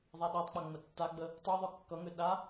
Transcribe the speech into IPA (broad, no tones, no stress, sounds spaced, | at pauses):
ðˤ a ɗ a tˤ k͡p a ŋ͡m ə tː a ɡ͡b ə | tˤ u ðˤ œ kː ʌ ŋ ø ɗ a